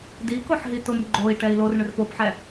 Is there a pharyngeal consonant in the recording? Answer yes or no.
yes